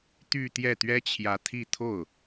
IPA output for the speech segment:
t̪ y˥˧ t̪ j ɛ˥˩ t̪ ɥ ɛ˥ t͡ɕʰ j ä˧˥ t̪ʰ i˥˧ t̪ʰ o˥˩ ʊ̯

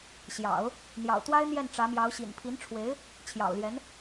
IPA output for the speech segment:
ɕ j ɑ̰˨˩˦ ʊ̯ | n̪ j ɑ̰˨˩ ʊ̯ t̪ w a˥ ɪ̯ n̪ j ɛ˥˩ n ʈ͡ʂ ä˧˥ m j ɑ˧˥ ʊ̯ ɕ ḭ˨˩ n pʰ i˧˥ n ʈ͡ʂʰ w e˧˥ ɪ̯ | t͡ɕʰ j ɑ̰˨˩ ʊ̯ l j ɛ˧˥ n

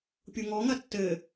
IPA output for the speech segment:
pʲ u ŋ ɔ ŋ ɐ tː ɘ

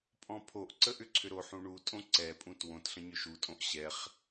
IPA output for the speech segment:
pʼ ɔ̃ pʰ o ʔ ǀ ə ʔ ʏ ǀʰ ʏ ɾ o ħ ũ ɳ u tʼ õ ǀ ɛ pʼ ũ t w õ t ɬ ə̃ ɲ ʏ ʃ u tʼ õ ʔ ɕ ɛ χ

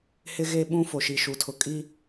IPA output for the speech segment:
h ɪ˦ ɣ e˦ ɓ ũ˦ f o˨ ʃ i˨ ʃ u˨ tʰ ʊ˨ kʼ i˦

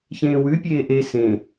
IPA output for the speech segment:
ç ẽː w ʉ pʲ eː ʔ e s ẽ

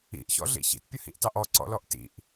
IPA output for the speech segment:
ḭ ʔ ç ɔ̰ ɮ ḭ ç ḭ t pʲ ə h ḭ ʔ t ɑ ʔ ɔ ǀ ɔ̰ l ɔ ʔ t ḭ ʔ

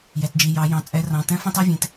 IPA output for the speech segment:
j ɛ˩˧˩ t d͡ʒ i˩˧˩ j ɑ˨˦ j ɑ̃˨˦ t͡sʼ ɛ˨˦ r ɑ̃˩˧˩ t ɛ̃˥ f ɑ̃˥ t ɑ˥ vʲ ẽ˩˧˩ t

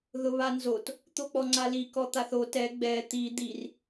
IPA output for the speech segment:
ð ʊ β a n z o t | t̪ o k͡p ɔ ŋ͡ǀ a l i k ɔ t̪ a θ o t ɛ ɡ͡b ɛ t̪ i d̪ i r

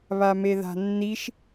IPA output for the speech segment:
β a m e ð a̤ nː i ʃ

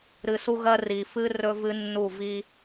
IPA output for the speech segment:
ɾ ɨ˨ s u˦ ɣ ɜ˦ r i˨ f ɨ˦ r ɵ˦ v ɨ˦ nː u˦˨ v i˦

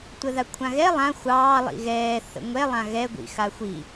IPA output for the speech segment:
tʷ ə ð a kʷʰ ã ɣ ɛ lˠ ã xʷ ɑː lˠ ḭ ɣ ɛː θ ə̰ ŋʷ ɛ lˠ ã ɣ ɛ ɡʷ ḭ x a xʷ i

